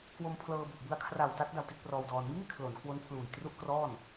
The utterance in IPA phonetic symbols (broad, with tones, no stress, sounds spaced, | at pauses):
k w o˧ m pʰ l ɤː˧ b u˨˩ ʔ b ɯ˧ a̯ kʰ r a˨˩ w t a˦˥ t̚ d a˧ w t i˦˥ t̚ p r ɔː˧ w d ɔː˧ n m iː˥˩ kʰ l o˩˦ n k w o˦˥ n pʰ l uː˨˩ j t r u˥˩ ʔ k r ɔː˥˩ n